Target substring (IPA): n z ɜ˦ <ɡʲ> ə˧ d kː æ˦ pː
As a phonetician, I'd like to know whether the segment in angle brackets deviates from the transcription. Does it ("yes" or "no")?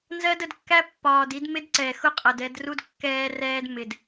yes